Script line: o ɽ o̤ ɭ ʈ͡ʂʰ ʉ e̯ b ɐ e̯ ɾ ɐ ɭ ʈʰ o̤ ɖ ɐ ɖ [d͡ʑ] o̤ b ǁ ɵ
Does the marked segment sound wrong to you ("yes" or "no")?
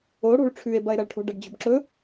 no